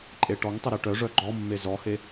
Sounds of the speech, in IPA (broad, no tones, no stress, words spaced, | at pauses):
ǃʼeʈɔŋtˤə ɾeʈœʐœ ɡ͡ǃɔmːe zɔhe